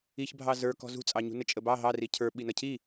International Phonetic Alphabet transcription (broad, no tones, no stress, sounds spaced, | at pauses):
i ç bʱ ɑ z ə˞ k ɔ̤ z ṳ t͡sʼ ɑ ɲ ṳ n ə t͡ʃʼ ə b ɑ ɦ ɑ r i cʰ ə˞ ɓ i n ʌ cʰ i